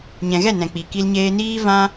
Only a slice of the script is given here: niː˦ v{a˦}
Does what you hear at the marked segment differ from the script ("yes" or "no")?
yes